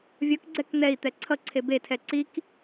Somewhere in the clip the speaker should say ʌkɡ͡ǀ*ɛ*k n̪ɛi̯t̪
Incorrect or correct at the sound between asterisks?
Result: correct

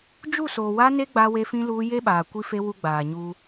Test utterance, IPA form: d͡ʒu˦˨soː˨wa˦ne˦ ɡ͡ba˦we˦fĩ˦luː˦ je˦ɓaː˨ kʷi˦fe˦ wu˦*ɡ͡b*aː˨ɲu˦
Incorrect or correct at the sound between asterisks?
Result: correct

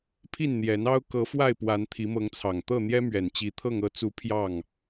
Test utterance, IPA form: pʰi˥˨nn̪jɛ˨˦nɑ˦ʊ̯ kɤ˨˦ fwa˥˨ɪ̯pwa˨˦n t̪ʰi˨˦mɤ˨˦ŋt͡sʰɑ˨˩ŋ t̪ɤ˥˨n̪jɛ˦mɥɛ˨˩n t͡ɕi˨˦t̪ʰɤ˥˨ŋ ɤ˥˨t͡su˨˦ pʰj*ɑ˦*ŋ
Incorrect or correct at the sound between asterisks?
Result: incorrect: ɑ˥˨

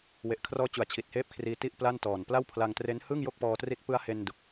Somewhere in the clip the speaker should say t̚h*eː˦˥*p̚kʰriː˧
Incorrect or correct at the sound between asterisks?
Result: incorrect: eː˥˩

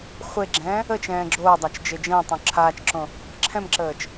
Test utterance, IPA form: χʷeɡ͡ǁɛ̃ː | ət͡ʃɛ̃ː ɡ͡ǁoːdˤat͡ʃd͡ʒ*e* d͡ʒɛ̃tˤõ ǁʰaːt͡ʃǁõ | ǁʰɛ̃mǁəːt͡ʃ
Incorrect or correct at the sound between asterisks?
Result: correct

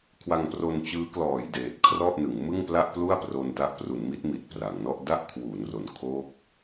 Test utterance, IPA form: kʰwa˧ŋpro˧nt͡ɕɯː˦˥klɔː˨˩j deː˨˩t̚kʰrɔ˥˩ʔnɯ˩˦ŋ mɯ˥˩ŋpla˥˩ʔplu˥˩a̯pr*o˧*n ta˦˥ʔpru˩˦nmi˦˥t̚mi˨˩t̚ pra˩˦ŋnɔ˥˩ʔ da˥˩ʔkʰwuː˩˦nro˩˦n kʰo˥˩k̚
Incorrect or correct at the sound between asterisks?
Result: correct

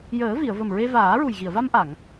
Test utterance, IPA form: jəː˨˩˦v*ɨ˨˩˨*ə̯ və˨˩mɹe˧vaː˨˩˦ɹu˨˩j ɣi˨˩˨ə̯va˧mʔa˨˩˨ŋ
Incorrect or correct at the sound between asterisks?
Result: incorrect: i˨˩˨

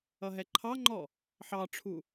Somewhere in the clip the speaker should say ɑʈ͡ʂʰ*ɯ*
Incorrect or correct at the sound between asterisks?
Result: incorrect: u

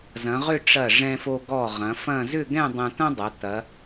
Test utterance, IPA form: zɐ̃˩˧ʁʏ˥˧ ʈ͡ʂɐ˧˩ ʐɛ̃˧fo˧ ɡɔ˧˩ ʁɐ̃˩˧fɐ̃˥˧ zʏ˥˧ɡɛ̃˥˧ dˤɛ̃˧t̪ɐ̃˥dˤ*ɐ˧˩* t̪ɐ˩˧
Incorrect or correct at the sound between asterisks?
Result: incorrect: ɐ˩˧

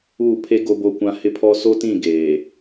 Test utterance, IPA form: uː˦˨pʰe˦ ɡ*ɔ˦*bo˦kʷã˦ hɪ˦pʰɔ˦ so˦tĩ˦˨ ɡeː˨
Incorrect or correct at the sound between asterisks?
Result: incorrect: o˦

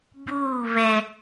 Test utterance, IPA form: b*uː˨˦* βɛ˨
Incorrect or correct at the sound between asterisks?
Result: incorrect: uː˦˨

